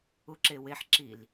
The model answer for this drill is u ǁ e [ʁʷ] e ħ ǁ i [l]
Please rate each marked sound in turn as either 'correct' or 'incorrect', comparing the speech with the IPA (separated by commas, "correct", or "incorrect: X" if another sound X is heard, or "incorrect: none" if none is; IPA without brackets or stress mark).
incorrect: w, correct